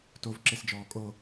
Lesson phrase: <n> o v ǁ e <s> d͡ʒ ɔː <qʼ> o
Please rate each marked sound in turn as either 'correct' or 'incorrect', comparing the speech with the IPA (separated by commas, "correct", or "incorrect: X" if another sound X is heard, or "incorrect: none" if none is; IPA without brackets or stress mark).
incorrect: t, correct, incorrect: kʼ